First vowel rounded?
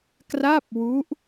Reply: no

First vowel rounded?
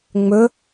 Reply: yes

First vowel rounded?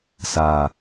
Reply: no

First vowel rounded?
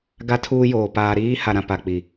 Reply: no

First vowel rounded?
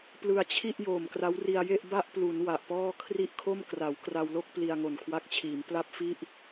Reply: no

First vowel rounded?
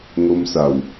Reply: yes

